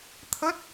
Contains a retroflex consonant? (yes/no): no